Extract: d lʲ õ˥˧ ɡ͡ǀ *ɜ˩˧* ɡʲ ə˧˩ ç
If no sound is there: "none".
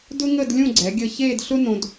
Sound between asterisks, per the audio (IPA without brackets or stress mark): ɛ˩˧